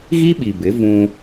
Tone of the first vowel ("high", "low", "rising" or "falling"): high